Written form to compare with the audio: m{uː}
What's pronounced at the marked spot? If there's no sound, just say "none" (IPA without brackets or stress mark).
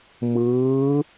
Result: ɯː